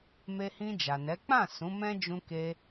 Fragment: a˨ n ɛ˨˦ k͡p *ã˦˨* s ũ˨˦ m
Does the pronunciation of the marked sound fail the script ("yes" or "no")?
no